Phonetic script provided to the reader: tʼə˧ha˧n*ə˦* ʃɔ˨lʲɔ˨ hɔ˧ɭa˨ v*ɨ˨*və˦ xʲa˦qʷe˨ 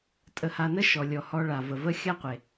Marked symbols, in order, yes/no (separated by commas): yes, no